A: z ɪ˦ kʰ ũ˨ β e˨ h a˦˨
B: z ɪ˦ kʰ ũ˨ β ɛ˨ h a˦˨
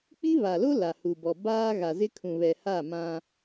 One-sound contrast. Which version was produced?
B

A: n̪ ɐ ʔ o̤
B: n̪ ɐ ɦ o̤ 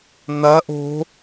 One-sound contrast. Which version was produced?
A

